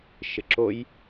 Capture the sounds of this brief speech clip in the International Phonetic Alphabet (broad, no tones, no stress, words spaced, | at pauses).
ʃɪǁoj